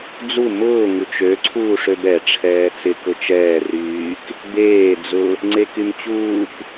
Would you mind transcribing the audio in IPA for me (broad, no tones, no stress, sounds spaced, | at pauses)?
d͡z u m ʊː ŋ u t͡ʃ ø ǀʰ uː ʂ ø b ɛ ʈ͡ʂʰ ɛː t͡s ɪ k ʊ t͡ʃ ɛː r yː k | b eː d͡z ʊ | ŋ͡ǀ e k y m t͡ɕ uː k